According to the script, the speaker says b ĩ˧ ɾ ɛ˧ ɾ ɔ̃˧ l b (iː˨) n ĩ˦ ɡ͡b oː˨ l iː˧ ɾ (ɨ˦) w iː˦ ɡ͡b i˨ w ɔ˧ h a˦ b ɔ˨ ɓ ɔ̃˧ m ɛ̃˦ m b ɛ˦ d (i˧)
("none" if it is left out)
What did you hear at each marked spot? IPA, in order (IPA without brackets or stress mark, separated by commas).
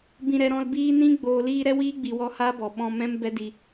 iː˦, ɛ˦, i˧